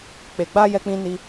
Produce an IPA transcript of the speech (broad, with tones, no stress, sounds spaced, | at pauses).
k͡p e˨ ɡ͡b a˧ j ɛ˦ k͡p ĩ˦ n i˦